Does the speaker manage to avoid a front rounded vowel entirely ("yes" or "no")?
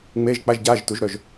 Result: no